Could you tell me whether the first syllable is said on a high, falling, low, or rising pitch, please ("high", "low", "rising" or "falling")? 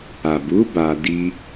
low